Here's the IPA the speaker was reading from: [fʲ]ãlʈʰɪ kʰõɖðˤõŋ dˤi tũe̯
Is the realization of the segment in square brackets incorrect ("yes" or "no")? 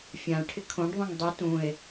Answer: no